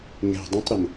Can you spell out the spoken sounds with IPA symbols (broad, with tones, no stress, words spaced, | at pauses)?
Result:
ŋɛ̤˨dˤə̃˦tˤɾə˨m